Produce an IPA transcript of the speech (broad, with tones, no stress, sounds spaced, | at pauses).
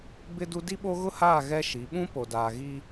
b ɪ˦ d u˦ d i˦ ɓ o˦ ɣ ʊ˦ h aː˦˨ ɣ ɛ˦ ʃ i˨˦ ɓ ũ˦ p o˨ d aː˨ ɣ i˦